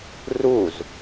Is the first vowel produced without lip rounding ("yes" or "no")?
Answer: no